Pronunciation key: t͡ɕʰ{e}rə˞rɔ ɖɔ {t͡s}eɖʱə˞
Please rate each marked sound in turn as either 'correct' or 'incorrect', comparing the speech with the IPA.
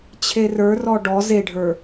correct, incorrect: z

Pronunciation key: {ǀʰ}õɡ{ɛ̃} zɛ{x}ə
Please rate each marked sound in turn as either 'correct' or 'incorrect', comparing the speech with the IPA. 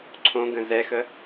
correct, incorrect: ə̃, correct

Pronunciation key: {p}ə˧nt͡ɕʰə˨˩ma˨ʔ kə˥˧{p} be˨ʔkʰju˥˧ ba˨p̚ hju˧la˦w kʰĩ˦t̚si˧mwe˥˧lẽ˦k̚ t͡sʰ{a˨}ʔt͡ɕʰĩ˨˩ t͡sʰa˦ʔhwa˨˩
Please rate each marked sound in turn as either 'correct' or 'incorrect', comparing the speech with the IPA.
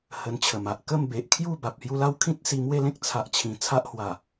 incorrect: h, incorrect: m, correct

